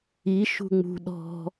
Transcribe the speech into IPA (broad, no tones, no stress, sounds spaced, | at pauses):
i ʃ ṳ ŋ͡m ṳ ɗ ɔ̤